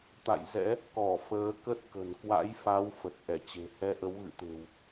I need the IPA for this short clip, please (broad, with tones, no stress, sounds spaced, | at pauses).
t̪ a̰˧˨ j z ɛ̰˧˥ | k ɔ˧˩ f əː˨˦ k ə˦˥ t̚ k ə̤˨˩ n k w a̰˧˥ j f a˨˦ w f ə˨˩ t̚ ʔ ɛ˧˩ t͡ɕ e̤˨˩ h ɛ˧ ʔ ə˨˦ w ɣ ɨ̰˧˨ t̪ e̤˨˩ w